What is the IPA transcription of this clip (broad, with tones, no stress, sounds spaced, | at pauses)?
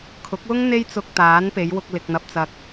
kʰ ʊ˨˥ k̚ w ʊ˥ ŋ n̪ e˥ j t͡s ʊ˧ k̚ t̪ aː˨˥ n p e˨˧ j w ʊ˧ k̚ l ɪ˨ k̚ n̪ ɐ˨ p̚ t͡s ɐ˨ k̚